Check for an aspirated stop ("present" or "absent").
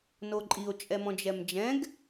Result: absent